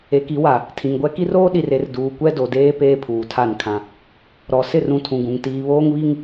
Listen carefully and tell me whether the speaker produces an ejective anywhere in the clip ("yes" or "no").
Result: no